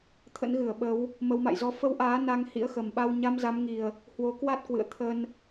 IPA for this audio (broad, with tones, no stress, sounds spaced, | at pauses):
t̪ʰ ə̰˧˥ n ɣ ɨ˧˩ ə̯ ɓ ə˨˦ w | m ə˨˦ w m a̰˧˨ j z ɔ˧ f ə˧ w ʔ aː˨˦ n a˧ ŋ h ḭ˧˥ ə̯ x ə˨˩ m ɓ a˧ w ɲ a˧ m z a˨˦ m ŋ i˨˩ ə̯ | h w o˨˦ k w a˦˥ t̚ k w ɨ̰˧˨ ə̯ t̪ʰ ə˧ n